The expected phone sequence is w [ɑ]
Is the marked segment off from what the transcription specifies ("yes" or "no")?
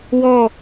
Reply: yes